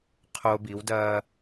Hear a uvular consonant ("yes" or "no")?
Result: yes